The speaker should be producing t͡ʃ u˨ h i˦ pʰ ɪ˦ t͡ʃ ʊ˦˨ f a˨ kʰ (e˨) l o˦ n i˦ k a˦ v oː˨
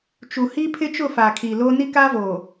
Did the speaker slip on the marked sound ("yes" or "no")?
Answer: yes